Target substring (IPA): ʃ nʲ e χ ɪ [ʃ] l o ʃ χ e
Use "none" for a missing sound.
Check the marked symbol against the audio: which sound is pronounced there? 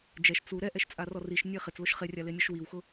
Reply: t͡s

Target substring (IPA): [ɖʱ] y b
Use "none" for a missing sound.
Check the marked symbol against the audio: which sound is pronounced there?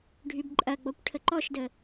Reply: ɖʱ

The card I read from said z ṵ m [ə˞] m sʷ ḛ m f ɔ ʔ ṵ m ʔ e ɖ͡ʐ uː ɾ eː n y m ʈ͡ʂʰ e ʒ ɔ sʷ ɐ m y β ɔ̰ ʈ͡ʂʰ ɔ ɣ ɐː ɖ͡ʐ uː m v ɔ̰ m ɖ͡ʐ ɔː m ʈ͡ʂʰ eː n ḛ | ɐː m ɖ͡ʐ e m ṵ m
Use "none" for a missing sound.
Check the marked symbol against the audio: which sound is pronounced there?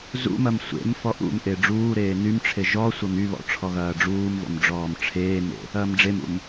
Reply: ɐ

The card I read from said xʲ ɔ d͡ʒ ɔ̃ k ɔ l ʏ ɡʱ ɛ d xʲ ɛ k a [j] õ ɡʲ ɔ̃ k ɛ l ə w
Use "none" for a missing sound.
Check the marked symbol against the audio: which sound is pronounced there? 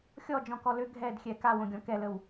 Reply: w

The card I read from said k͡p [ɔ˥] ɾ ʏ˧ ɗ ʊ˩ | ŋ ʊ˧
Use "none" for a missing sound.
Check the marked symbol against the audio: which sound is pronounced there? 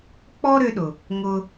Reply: ɔ˥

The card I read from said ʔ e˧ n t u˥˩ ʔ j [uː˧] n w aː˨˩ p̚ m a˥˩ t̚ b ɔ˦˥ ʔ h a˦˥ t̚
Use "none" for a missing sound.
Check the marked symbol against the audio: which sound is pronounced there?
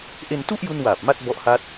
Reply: u˧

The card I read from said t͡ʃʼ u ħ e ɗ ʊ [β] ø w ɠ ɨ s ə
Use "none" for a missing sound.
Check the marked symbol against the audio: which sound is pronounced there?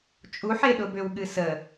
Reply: b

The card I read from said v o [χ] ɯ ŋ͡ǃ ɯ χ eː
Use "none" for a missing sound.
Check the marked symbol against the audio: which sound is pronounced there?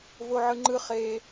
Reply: ʕ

